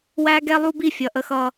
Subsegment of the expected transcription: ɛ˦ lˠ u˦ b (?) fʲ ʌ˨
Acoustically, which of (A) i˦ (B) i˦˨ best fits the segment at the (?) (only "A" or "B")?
B